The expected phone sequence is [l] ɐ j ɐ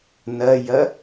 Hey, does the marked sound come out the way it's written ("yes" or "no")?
no